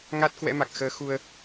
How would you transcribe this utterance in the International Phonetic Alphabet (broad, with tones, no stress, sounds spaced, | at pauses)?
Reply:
ŋ a˦˥ t̚ k w ɛ̰˧˥ m a˨˩ k̚ x əː˧ x u˧ ə̯